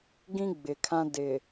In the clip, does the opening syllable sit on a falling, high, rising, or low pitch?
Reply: high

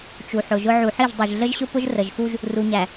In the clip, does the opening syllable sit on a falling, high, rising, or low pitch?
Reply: low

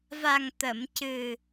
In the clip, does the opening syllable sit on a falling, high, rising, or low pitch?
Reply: low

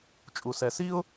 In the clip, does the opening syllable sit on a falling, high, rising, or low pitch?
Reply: low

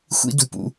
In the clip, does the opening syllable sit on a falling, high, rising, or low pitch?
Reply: high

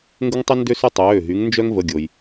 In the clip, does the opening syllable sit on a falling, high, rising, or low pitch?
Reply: high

